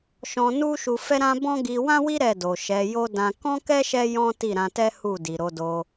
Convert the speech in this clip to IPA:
ʃ ɔ̃˧ n u˦ ʃ u˧ f ɛ˦ ɾ ã˦ b ɔ̃˦ ɡ i˧ w ã˦ w i˦ ɾ ɛ˦˨ d o˨ ʃ ɛ˨˦ j o˦ d ã˧ k ɔ̃˦ k ɛ˦ ʃ ɛ˦ j ɔ̃˦ t i˦˨ ɾ ã˧ t ɛ˦ h u˦˨ d i˨ ɾ o˨˦ d o˧

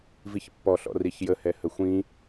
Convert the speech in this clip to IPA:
v i ç pː ɔ ɬ ɔ̰ r i ç j ə h ɛ h ə xʷ ĩ

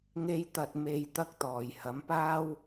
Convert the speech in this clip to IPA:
ŋ e˨˧ j t̪ ɐ˨ t̚ m e˨ j t̪ ɐ˧ k̚ t̪ ɔː˨ j h ɐ˨˥ m p aː˥ w

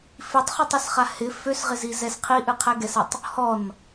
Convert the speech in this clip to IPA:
f i tˤ χ u tˤ ɨ s χ a h ɪ f ø s ʁ ɪ z i z ɛ s qʰ i ʔ ɨ qʰ ɛ ɡ ɛ s ɨ tˤ | h ɔ n

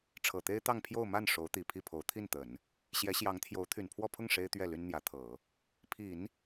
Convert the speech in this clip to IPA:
ʈ͡ʂʰ ɤ˨˩ t̪ e˥ ɪ̯ t̪ ɑ˥˧ ŋ pʰ j o˥˧ ʊ̯ m a˥˩ n ʂ o˧˥ ʊ̯ t̪ i˨˩ pʰ i˥˩ pʰ o˧˥ ʊ̯ t̪ʰ i˥˩ n t̪ ə˨˩˦ n | ɕ j ɛ˧˥ ɕ j ɑ˧˥ ŋ t̪ʰ j o˧˥ ʊ̯ t̪ʰ y˨˩ n pʰ w ɔ˥˧ pʰ ʊ˥˩ ŋ ʂ e˥ ɪ̯ t̪ ɥ ɛ˥˩ l y˥ n n̪ j ä˧˥ t̪ʰ ɤ˨˩˦ | pʰ i˨˩˦ n

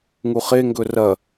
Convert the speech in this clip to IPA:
ŋ u χ e ŋ ɡ ɵ r ɐ

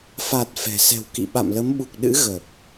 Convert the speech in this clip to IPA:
f a˨˩ t̚ f ɛ̤˨˩ s ɛ̤˨˩ w k ḭ˧˨ ɓ a̰˧˨ m l ə˨˦ m ɓ u˨˩ k̚ ɗ ɨ̰˧˥ ɣ ə˨˩ p̚

